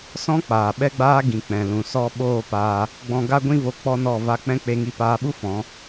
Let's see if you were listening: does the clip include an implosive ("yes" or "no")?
yes